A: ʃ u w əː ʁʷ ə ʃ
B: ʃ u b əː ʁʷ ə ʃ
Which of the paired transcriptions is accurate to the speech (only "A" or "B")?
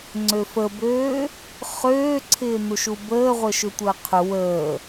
B